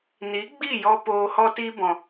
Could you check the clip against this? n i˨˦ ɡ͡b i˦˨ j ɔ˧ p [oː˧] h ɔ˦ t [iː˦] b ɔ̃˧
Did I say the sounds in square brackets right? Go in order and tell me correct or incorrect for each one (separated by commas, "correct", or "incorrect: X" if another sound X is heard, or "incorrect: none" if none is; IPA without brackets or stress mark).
correct, incorrect: i˦